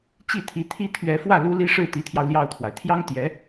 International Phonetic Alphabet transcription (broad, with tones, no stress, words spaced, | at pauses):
t͡ɕi˥˩t̪ʰi˧˥t̪ʰi˥ t̪ʰɥɛ˧˥fwä˥˩ lu˥li˥ ʂɻ̩˥˩t̪i˧˥t̪ʰjɑ˧ʊ̯ ljɑ˥˩ʊ̯t̪ʰwa˩ɪ̯ t̪ʰjɑ˥ŋ t̪jɛ˧˥